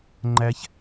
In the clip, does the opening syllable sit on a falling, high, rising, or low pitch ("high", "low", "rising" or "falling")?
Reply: high